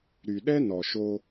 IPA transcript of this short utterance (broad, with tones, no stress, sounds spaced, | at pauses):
ɾ y˨ ɗ ɛ˦ n ɔ˨ ʃ o˦